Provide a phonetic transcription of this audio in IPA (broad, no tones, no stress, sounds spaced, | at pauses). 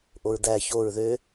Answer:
ʔ o ɹ d̪ æ ç o ɹ ð ø